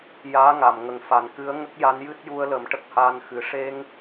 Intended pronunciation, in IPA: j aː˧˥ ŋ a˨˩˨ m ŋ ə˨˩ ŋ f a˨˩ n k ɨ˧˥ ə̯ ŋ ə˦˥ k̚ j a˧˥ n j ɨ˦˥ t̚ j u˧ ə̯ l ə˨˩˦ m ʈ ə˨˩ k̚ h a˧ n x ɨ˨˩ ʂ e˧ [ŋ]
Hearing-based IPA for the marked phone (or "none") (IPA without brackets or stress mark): ŋ